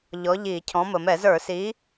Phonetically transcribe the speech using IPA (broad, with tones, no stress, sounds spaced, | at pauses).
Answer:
ʎ ɔ˨˥ ʎ i˧˩˧ cʰ ɔ̃˨˥ m ə˩ m ɛ˧˩˧ z ə˞˧˩˧ s i˨˥